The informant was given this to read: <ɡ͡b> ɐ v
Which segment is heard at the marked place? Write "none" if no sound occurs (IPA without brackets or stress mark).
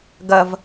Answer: ɡ